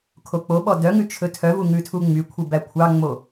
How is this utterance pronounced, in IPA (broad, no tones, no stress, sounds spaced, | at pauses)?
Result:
kʰ o k͡p o ɓ ɔ d œ ŋ ʉ t͡ʃʰ ɵ tʰ œ v u ŋ ʉ tʰ u ŋ͡m y kʷʰ i b æ kʷʰ ɑ ŋ͡m o